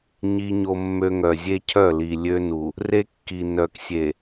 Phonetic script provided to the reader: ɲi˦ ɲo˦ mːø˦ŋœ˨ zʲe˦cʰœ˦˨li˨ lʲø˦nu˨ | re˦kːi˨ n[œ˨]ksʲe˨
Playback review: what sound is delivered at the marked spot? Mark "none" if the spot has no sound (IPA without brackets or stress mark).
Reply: œ˨